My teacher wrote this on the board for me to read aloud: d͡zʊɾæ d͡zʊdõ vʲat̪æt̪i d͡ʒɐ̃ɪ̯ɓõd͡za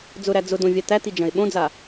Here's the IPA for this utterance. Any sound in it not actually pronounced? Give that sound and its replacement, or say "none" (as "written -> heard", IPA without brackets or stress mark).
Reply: none